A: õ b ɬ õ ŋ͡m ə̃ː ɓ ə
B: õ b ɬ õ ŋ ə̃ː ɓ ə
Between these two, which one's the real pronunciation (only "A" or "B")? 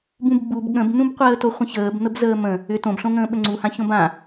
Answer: B